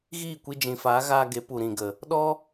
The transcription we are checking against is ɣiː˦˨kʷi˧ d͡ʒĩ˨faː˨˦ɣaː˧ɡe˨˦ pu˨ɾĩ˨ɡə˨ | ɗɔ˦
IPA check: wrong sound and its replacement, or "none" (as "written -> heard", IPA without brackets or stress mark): none